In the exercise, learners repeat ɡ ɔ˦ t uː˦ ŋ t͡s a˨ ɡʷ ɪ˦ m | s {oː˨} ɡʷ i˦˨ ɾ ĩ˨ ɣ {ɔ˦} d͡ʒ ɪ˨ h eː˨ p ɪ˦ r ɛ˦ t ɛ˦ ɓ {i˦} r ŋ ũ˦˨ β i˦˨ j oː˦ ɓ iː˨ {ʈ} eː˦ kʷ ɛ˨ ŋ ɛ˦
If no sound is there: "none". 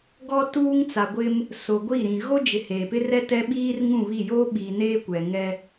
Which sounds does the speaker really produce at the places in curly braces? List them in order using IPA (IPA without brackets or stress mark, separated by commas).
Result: o˨, o˦, iː˦, n